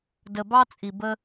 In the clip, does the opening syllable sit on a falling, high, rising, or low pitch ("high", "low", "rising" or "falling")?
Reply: low